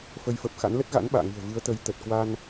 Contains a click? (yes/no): no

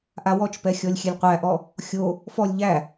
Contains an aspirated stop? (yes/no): no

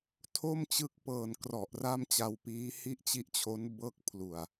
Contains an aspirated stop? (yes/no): yes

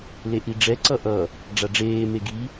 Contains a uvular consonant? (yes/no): no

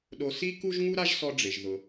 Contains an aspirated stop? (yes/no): no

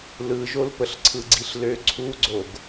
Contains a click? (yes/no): yes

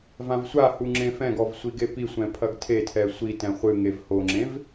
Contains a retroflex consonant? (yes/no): no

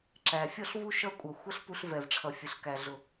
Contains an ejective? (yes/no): yes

